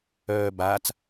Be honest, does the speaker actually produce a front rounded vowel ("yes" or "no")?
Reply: yes